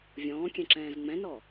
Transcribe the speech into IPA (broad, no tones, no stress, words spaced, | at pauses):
vʲɔ̃ːkʲɛ̃ǁɛ̃ːz ŋ͡mɛ̃nɔ